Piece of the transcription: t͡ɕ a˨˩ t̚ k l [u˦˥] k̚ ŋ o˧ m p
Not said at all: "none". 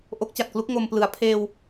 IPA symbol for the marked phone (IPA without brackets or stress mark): u˦˥